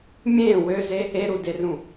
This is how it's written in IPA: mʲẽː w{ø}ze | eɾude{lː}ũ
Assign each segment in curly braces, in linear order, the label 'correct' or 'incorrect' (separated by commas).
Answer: correct, incorrect